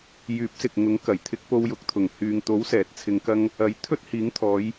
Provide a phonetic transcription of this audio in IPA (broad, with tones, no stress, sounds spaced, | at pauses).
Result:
j yː˨˥ p̚ s ɪ˨ k̚ ŋ ʊ˨˥ ŋ k ɐ˨˩ j t̪ʰ ɪ˧ k̚ p o˧ w j ʊ˨˥ k̚ t̪ʰ ʊ˨˩ ŋ h yː˨ ŋ t̪ o˨˥ w s ɛː˨˥ t̚ t͡sʰ ɪ˧ ŋ k ɐ˥ ŋ | ɐ˨˥ j t̪ʰ ɵ˥ t̚ h iː˨˥ ŋ t̪ʰ ɔː˨˧ j